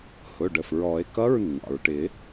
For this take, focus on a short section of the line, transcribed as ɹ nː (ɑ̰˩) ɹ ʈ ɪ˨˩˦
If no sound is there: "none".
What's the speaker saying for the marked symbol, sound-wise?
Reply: ɑ̰˩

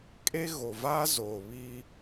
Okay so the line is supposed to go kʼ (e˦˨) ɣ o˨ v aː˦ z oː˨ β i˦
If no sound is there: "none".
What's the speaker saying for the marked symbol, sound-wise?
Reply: e˦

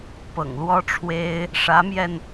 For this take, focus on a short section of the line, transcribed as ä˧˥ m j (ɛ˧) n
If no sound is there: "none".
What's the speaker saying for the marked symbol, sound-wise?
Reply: ɛ˧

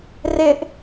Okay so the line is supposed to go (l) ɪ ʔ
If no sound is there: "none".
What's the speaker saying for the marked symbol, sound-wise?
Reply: r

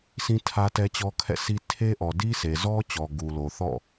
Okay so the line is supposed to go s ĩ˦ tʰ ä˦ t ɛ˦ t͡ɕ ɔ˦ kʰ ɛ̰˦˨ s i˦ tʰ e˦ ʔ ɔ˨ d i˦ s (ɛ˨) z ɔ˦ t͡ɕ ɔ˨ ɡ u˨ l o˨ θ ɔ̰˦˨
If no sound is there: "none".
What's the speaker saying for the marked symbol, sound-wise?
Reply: e˨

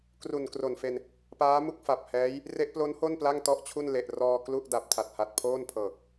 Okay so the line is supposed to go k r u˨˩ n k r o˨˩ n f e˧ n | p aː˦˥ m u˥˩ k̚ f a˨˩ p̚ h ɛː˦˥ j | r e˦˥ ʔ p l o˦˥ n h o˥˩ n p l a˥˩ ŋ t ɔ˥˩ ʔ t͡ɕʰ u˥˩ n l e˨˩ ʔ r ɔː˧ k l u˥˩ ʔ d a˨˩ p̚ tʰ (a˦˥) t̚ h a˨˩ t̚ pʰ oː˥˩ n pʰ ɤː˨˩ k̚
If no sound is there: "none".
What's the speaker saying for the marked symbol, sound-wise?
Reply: a˨˩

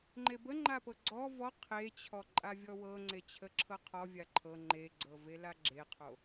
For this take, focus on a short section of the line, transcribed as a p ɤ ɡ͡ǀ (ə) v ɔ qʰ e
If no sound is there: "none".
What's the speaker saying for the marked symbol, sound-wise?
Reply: ɔ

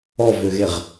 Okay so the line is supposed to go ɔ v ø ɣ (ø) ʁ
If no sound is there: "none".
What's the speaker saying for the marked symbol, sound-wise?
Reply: e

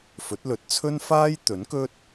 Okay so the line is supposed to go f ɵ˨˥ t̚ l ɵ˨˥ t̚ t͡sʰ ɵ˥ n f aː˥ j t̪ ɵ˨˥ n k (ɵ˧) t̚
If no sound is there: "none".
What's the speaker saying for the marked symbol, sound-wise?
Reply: ɵ˥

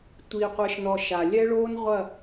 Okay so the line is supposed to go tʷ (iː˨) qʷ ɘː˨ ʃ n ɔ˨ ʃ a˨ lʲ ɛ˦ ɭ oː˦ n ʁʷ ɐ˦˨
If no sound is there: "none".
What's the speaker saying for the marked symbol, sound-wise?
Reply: iː˨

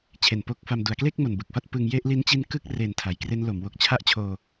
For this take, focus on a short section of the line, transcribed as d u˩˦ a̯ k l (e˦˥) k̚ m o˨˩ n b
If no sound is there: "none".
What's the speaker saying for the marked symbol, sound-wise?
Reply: e˥˩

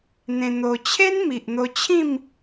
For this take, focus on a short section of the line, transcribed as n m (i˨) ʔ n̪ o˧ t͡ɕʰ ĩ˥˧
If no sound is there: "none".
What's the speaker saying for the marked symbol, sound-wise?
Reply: i˨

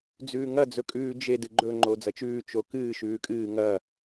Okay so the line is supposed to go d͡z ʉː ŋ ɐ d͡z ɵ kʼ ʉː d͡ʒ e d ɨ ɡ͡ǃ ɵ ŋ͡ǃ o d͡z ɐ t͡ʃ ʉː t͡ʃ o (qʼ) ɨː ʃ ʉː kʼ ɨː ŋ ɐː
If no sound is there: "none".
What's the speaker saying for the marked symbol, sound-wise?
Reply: k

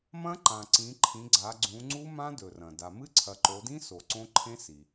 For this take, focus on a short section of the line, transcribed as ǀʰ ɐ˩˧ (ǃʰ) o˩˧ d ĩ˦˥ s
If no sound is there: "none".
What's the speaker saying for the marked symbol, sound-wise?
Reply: ǃ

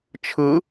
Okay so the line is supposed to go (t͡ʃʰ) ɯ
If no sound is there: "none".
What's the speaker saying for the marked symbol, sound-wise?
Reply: t͡ʃʰ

